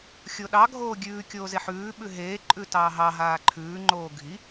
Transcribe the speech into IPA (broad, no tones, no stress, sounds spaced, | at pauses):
xʲ o ɗ ɑ ɡʱ oː ɡʲ ʉː kʲ oː z e ħ ʉː ɓ ʉ ɦ eː ǃʼ ʉ t ɑː ɦ ɑ ɦ aː ǃʰ ʉː ŋ͡ǃ oː ɡʱ i